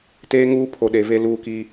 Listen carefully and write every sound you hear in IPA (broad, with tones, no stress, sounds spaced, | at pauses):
t eː˦ ŋ uː˦ pʰ o˨ ɗ e˨ v e˦ l uː˦ k i˦